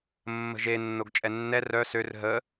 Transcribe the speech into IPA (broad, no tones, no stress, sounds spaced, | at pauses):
mː ə̤ ʒ e nː o ɡ t͡ʃʼ ɛ nː ɛ r œ s ø r ɦ ə